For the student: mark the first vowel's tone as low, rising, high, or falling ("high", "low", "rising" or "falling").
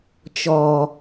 low